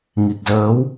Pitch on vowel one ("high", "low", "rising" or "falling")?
low